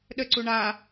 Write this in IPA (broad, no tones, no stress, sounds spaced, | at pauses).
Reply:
ɗ ə ǀ u ɳ a